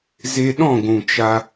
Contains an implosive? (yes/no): yes